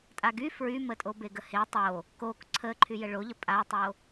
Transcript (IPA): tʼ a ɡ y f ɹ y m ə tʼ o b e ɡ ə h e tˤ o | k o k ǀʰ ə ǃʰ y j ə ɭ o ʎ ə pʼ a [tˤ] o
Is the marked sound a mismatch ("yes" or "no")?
no